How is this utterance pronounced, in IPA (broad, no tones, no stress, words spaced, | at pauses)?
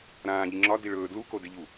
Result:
ɾãː ʎiŋ͡ǁɒ diɭɵː dlu kodɪʎu